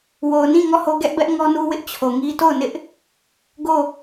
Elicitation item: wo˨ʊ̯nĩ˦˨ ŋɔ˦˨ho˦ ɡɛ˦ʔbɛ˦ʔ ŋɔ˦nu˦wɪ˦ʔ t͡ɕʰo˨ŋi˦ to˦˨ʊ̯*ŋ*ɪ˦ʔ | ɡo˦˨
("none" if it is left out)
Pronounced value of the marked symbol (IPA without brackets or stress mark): n